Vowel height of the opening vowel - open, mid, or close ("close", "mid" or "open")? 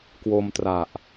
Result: mid